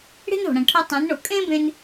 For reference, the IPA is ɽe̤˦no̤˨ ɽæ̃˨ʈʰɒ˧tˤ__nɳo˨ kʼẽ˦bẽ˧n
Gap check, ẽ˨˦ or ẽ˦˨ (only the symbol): ẽ˨˦